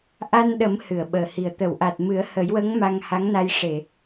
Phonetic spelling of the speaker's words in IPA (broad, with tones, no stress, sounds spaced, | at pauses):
ʔ a˧ n ɗ ə˨˩˦ m h ɨ˨˩˨ ə̯ ɓ əː˨˩ h i˨˩ ə̯ t̪ ə˨˩˨ w ʔ a˨˩ t̚ m ɨ˨˩˦ ə̯ h ə˨˩˦ j w ə˧˥ ŋ m a˧ ŋ h a˧˥ ŋ n a˧ j ʂ e˨˩˨